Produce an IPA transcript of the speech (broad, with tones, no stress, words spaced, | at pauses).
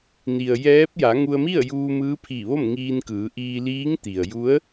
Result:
ni˩ə̯jɛː˧˥p̚ ja˩˧ŋu˧ə̯mi˥˨ə̯ juː˧mɯː˧˥pʰiː˧˩ ʋo˥˨mŋiː˧nkɯː˩˧ ʔiː˧liː˧˥ŋt̪i˩ə̯ ju˧˥ə̯